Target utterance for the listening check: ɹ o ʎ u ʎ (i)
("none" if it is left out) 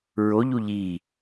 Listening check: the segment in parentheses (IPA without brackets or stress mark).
iː